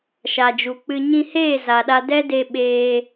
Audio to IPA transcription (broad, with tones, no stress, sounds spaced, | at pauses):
ʃ a˨ d͡ʒ u˨ k͡p ɨ˧ ɲ ĩ˧ h eː˦˨ z a˨ ɗ a˧ d ɛ˦ d e˧ ɓ eː˧